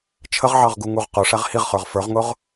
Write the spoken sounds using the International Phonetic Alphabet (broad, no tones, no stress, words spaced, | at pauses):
t͡ʃʰəʁʕɑʁɡu ŋuʁqʊ ʂæʁhiʁχə˞ʁ fə˞ʁŋʊʁ